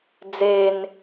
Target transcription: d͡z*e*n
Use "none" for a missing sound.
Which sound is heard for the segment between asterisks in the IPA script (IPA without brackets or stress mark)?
e